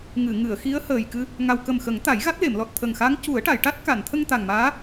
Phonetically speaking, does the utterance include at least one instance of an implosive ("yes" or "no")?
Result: no